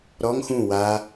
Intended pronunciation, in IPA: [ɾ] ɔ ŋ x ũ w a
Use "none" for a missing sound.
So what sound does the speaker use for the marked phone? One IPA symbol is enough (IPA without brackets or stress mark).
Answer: ɾ